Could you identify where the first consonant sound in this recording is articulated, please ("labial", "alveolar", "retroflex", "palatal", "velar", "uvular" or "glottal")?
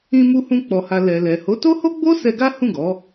labial